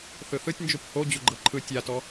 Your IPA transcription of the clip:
θɯθɯtʲnd͡ʒup ho d͡ʑuɡ͡ǃɤǃʰɯ tʲatɔ

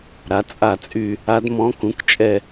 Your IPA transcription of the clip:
ɾa˩˥t͡sʼa˦˨t͡sʼy˦˨ | a˧˥dmɔ̃˧˥kũ˩˥kt͡ʃʼɛ˦˨

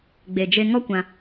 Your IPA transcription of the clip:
ɡ͡be˨d͡ʒe˧ ŋɔ˦kʷã˧

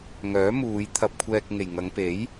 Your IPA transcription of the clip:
ŋœː˨˥muː˨˧j t̪ʰɐ˧p̚kʷʰɛː˧k̚ŋe˨j ŋɐ˨˧ŋpe˨˥j

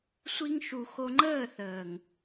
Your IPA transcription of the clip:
sʷi˧ŋʃu˨ xo˧ŋ͡ǃəː˦˨θəː˨ŋ

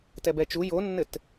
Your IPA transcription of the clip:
tɛbɛt͡ʃu jonːɘt

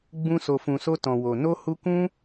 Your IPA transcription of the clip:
ɡ͡bũ˧so˨fũ˨so˧ tɔ̃˨wo˨ no˧hu˧ kũ˦

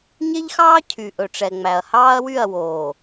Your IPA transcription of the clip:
ɲe˦ʎxɑː˦ cʰy˨ʔɵ˨ʈ͡ʂɛ˨ŋ͡mæ˨ɐ̯ hɑː˦ɐ̯wy˦˨ɐ̯woː˨

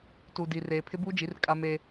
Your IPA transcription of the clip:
tu˨di˨ reː˨pʰɪ˦buː˦d͡ʒi˨˦r kʼa˦me˦

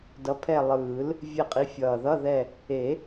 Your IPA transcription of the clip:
dʌ˨˥pʰɛ˦˨ lˠɯː˨˩˦l | vʲe˦˨qʼi˨˥fʲʌː˨˩ ðʌ˧˥˧ðɛ˦˨ | e˨˩˦

